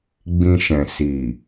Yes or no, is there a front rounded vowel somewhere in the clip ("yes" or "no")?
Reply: no